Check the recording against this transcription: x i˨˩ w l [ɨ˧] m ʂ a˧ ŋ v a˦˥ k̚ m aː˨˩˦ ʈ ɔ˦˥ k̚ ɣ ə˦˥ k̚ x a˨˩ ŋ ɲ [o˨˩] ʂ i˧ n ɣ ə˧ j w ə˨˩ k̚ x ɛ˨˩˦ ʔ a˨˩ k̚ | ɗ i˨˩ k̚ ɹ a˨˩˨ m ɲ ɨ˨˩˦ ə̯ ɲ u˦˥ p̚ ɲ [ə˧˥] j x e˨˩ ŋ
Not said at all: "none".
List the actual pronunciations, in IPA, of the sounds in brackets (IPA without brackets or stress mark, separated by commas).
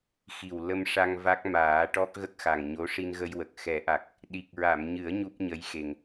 ə˧, o˧˥, ə˧˥